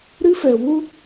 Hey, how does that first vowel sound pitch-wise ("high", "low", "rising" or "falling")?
high